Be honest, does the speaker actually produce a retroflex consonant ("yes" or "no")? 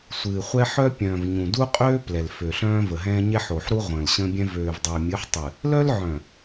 no